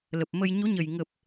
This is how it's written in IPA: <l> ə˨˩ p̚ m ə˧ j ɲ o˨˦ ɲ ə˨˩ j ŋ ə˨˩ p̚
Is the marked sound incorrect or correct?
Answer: correct